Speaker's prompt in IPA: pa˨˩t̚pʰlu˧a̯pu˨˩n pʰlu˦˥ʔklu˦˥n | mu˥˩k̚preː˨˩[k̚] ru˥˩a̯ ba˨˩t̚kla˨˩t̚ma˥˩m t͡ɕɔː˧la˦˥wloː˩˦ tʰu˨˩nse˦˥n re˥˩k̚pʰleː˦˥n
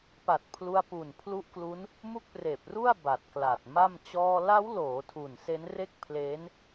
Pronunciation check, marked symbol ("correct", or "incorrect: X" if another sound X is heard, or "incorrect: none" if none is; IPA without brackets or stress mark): incorrect: p̚